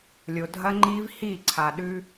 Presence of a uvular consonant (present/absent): absent